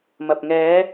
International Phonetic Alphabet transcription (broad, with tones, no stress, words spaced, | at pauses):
mɐ˨p̚ ŋɛː˨˧